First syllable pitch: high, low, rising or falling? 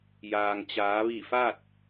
low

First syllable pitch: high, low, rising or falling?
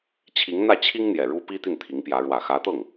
rising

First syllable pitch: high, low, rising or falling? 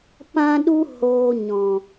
high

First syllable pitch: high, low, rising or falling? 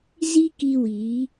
high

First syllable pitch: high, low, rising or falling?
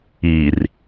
low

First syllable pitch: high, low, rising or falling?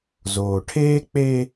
low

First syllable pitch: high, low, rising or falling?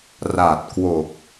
low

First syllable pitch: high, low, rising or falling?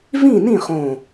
falling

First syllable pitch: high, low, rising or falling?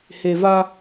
low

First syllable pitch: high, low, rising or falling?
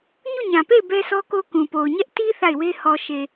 falling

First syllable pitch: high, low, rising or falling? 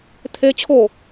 high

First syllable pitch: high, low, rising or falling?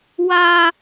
high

